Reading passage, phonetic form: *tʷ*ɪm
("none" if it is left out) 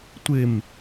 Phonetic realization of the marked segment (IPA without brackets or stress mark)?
tʷ